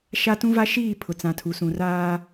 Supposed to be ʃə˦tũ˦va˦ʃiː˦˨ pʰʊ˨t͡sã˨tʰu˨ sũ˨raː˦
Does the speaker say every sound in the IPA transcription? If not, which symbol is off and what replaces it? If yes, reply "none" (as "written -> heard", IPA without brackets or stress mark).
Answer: ə˦ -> a˦